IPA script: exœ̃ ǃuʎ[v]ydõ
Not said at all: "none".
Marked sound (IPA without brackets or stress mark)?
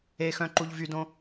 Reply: v